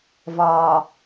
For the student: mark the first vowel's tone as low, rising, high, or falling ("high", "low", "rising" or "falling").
low